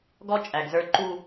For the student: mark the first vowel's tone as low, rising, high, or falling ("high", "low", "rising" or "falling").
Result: high